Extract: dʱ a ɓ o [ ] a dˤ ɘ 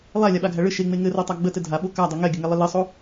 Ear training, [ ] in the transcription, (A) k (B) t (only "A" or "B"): A